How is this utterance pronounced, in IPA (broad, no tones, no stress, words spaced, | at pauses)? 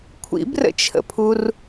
kʷʰḭbrə̰t͡ʃʰə̰pʰur